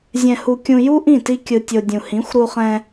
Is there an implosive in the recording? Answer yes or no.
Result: no